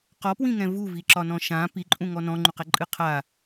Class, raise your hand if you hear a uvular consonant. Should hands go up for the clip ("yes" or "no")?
yes